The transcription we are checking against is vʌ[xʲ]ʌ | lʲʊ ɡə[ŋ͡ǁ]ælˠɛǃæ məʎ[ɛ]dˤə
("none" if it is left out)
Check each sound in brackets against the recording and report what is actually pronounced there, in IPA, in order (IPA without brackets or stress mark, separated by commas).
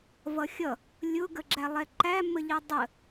xʲ, ɡ͡ǁ, ɛ